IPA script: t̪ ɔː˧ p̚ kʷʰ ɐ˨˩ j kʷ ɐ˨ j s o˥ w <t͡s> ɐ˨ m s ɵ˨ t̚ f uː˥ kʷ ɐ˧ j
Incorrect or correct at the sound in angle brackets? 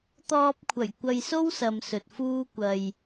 incorrect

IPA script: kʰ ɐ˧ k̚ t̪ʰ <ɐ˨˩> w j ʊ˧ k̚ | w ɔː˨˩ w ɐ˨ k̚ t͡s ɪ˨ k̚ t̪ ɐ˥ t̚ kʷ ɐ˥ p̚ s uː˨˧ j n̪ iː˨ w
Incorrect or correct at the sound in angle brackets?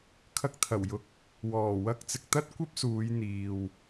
correct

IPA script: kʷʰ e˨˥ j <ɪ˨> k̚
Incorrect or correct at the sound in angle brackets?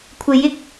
correct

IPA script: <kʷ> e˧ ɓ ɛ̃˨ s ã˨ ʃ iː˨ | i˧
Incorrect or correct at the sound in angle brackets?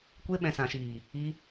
correct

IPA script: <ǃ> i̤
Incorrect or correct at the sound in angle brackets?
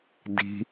incorrect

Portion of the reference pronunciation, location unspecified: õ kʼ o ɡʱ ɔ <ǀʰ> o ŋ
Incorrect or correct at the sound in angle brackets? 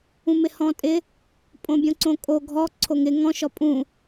correct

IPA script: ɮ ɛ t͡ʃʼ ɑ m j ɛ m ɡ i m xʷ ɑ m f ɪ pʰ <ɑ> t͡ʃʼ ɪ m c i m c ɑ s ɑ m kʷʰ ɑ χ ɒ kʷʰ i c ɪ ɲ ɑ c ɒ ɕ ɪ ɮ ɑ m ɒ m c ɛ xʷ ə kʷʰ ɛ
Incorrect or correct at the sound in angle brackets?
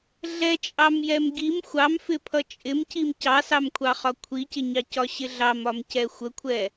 incorrect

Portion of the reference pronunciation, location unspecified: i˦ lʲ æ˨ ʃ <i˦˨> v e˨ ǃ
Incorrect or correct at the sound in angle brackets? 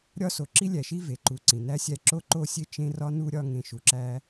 incorrect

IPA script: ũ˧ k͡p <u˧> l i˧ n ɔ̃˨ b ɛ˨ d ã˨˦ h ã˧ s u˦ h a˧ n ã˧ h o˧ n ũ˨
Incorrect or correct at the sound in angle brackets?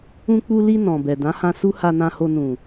correct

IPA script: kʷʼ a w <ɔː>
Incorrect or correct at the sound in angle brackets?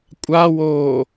incorrect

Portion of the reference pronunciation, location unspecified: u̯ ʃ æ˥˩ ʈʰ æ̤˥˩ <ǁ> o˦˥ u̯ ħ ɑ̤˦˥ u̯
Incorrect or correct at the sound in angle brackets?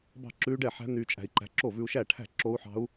correct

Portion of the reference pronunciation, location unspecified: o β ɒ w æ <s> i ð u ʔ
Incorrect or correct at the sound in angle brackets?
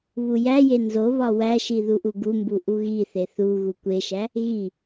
incorrect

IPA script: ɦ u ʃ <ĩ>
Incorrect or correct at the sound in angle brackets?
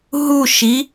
incorrect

